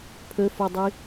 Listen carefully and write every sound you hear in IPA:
pʰ ɵ f o dˤ i

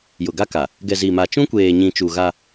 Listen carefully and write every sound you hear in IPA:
j ʊ˨ ɡ a˦ k a˨ | ɡ ɛ˨ z i˨ m a˨ t͡ʃ ũ˦ kʷ eː˨ ɲ ĩ˨ t͡ʃ u˨ ɣ a˦

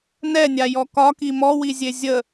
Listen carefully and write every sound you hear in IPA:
n ɛ nʲ a j ɔ k ɒ k i m ɔ w i zʲ e zʲ ə

